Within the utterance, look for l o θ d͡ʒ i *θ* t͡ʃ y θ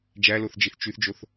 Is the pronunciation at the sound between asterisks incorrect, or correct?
correct